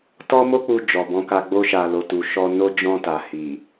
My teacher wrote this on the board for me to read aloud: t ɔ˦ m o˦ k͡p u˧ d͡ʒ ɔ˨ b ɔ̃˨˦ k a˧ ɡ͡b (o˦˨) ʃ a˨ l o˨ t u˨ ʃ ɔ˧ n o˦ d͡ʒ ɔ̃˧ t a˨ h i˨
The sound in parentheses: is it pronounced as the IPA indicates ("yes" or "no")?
no